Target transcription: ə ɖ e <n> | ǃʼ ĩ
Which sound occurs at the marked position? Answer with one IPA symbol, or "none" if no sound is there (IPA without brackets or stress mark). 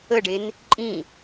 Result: n